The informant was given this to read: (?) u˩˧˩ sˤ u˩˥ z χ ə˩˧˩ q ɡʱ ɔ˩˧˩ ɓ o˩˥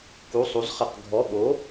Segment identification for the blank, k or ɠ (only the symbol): k